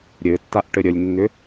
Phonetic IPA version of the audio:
ɾʲɘtːaʔ ʈɘɾʲəlʲnːʏ

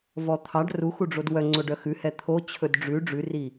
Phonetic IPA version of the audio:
vɔt̪ʰɑɖ ruxuɖ͡ʐod wœŋ͡ǀoɖœ xʉhɛ t̪ʰo t͡ɕʰɵdɖ͡ʐʉ ɖ͡ʐʉri

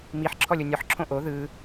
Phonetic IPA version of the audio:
miħ ǁʰɔlʲonʲɔħ ǁʰõʔo ðɯ

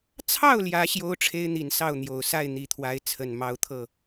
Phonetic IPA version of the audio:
t͡sʰɑ˥˨ʊ̯ljä˨˦ ɕjo˦ʊ̯ʈ͡ʂʰe˦ɪ̯ n̪i˨˩n sɑ˥˨ʊ̯n̪jo˨˩ʊ̯sa˥˨ɪ̯ n̪i˨˩t̪ʰwa˨˦ɪ̯ t͡sʰə˨˩nmɑ˦ʊ̯t̪ʰɤ˥˨

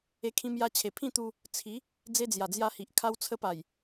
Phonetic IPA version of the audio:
e˧kʰĩ˧mja˧t͡ɕʰe˨˩ pʰĩ˥˧t̪u˧ | t͡sʰi˨˦ | d͡ze˧d͡zja˨˩d͡zja˧hi˨ʔ kʰa˧wt͡sʰə˧pa˨˩j

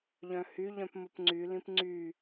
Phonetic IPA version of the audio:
ʎœ̃hy ʎœ̃pmʊpŋ͡ǀy lĩpŋ͡ǀy

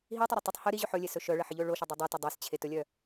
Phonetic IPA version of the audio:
ɦitˤɵɾʊ tˤʊtˤ hɵ ɾiʑʉħ ɵlʲesɵ ʃœɭəħiʎɵ ɭoʃedˤʉ dˤʉto dˤist͡ɕʰetɵlʲœ

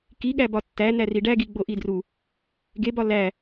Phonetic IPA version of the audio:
kiɠæ bɒtːæ næriɖæɡi ɡ͡boʔidru | ɡebɒ læ

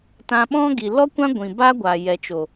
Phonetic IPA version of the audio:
tã˧ɓɔ̃˦ɡi˨ lɔ˦kʷã˦ ɡʷĩ˨ba˦ɡʷa˨ jɛ˨t͡ʃo˨

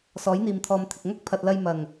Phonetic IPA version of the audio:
sɔː˨˥jn̪iː˨mt̪ʰɔː˨mt̪ʰɪ˨k̚ ŋɐ˥k̚pʰɐ˨t̚lɐ˧j mɐ˨˩ŋ

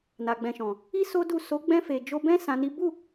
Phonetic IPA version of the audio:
na˨ɡ͡bɛ̃˨ʃɔ̃˨ | i˦ so˦du˦˨ so˨˦ɡ͡bɛ̃˧fe˨ d͡ʒo˧bɛ̃˦ sã˧ni˦ bu˦˨

